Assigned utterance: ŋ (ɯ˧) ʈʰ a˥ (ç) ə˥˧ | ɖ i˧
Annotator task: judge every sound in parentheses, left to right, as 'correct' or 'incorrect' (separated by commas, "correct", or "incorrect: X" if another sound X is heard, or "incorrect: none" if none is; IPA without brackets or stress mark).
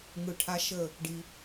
incorrect: ɯ˧˩, incorrect: ʃ